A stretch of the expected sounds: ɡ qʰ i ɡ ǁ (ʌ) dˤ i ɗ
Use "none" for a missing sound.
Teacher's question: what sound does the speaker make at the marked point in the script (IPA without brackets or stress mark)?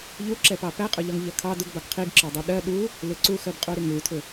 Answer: ɒ